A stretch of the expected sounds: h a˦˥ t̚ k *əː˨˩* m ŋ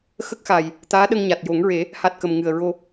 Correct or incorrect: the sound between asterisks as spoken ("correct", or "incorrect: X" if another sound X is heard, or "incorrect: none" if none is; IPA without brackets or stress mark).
incorrect: ə˨˩